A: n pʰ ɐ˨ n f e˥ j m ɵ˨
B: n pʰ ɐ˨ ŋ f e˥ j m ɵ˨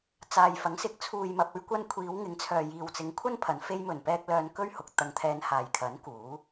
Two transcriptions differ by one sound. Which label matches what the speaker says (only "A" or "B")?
A